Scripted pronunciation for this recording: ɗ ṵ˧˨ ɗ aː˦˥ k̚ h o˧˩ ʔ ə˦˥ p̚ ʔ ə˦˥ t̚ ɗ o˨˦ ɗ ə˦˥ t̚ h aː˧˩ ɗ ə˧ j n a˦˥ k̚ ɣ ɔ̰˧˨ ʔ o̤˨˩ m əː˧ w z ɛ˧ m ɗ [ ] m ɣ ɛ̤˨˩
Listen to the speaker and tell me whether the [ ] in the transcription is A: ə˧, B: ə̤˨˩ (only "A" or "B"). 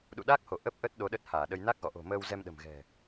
B